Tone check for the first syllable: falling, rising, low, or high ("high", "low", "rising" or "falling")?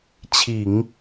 low